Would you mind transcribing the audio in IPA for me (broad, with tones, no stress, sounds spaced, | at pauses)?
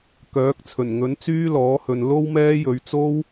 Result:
k œː˨˥ k̚ t͡sʰ ɵ˨˩ n ŋ ɵ˨˥ n t͡s yː˥ l ɔː˨˥ h ɵ˨ n l o˥ w m ɛː˥ j ɵ˨˧ ɥ t͡s o˥ w